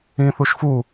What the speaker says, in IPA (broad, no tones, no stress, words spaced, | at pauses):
ĩθuʃfu